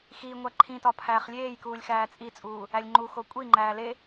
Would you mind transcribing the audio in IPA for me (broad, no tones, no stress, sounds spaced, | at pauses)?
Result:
x i ŋʷ æ ǃʰ ĩ t ɒ pʰ æː χ lʲ eː j k uː lʲ x æː t͡sʼ i t͡sʼ uː | æ lʲ ŋ͡ǃ u x o kʷʼ i ŋ͡ǃ æː l e